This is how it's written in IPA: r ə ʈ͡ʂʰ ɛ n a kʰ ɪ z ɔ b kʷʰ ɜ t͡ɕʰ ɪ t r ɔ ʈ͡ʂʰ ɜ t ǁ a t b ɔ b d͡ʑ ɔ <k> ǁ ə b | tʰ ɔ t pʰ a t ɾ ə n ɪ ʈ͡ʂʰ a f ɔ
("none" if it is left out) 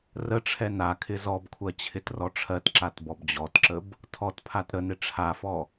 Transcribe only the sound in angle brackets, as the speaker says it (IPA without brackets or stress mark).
t